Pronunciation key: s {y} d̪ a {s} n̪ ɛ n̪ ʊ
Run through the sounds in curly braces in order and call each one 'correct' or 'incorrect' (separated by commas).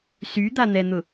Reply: correct, incorrect